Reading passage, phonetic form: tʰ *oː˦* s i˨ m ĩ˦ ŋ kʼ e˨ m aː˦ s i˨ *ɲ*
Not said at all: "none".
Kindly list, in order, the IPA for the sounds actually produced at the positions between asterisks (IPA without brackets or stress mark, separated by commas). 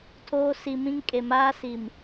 oː˦, m